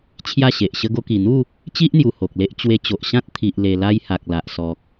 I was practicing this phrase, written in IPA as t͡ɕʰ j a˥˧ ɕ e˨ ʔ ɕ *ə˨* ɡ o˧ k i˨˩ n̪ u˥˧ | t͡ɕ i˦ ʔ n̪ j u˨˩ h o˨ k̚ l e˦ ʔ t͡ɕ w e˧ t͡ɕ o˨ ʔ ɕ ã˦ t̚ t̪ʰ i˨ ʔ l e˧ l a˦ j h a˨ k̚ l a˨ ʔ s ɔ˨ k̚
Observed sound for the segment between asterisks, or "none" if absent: ə˧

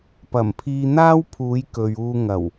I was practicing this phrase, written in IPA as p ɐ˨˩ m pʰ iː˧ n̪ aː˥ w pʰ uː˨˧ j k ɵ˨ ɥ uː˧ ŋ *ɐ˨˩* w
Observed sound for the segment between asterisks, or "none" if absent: ɐ˨˩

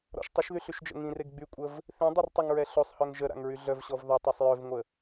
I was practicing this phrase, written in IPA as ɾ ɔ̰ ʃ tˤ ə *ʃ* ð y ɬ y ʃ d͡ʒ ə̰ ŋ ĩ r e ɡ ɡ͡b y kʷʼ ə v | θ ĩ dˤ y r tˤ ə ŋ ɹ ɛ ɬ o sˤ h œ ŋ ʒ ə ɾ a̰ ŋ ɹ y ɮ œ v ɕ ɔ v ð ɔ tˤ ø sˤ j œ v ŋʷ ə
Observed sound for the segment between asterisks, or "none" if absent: ʃ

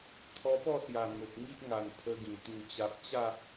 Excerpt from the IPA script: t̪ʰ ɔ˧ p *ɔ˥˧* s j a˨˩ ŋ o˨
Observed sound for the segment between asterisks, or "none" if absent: ɔ˥˧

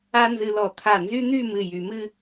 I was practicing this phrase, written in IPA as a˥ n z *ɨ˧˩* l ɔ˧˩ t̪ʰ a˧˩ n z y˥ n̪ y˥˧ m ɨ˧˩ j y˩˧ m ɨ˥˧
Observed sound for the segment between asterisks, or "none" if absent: ɨ˧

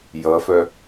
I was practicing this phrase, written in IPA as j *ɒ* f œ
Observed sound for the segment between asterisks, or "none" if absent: ʌ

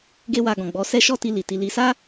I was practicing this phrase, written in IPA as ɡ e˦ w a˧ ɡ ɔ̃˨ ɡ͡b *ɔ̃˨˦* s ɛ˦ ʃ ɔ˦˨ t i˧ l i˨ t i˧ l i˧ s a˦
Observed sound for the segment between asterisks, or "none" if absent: ɔ˨˦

